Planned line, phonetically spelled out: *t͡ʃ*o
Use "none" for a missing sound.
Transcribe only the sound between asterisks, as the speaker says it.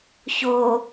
ç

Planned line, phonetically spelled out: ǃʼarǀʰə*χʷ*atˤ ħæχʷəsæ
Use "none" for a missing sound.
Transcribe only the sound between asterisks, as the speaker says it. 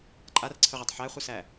ʁʷ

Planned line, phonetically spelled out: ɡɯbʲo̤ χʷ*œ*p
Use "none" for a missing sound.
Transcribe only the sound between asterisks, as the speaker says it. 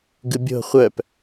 œ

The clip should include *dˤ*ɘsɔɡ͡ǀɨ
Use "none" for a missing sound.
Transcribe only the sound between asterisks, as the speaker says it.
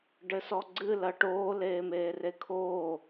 ɖ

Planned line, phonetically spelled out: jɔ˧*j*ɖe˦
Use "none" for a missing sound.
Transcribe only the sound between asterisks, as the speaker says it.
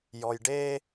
j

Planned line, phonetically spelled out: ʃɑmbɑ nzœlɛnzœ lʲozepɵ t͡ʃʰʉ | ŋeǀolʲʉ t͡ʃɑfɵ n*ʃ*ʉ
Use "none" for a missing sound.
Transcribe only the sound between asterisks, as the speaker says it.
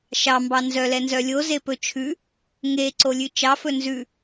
z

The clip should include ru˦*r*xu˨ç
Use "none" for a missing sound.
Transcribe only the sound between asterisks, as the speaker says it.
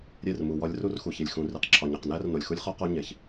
r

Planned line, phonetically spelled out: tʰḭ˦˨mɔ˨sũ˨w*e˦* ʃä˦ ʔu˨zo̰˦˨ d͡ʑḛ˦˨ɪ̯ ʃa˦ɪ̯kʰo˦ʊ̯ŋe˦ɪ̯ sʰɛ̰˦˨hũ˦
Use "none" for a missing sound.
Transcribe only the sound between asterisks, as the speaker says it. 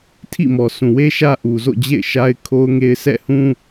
e˦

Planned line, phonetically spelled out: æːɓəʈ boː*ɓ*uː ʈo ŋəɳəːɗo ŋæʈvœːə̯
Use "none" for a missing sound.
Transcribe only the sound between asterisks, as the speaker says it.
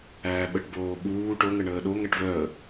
ɓ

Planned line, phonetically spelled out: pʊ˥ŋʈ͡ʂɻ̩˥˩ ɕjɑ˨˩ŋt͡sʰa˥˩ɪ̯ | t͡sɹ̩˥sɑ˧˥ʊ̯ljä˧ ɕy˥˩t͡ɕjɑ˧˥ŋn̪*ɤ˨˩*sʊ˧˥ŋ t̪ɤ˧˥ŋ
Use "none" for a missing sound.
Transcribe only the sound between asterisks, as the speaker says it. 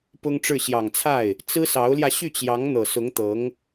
ɤ˨˩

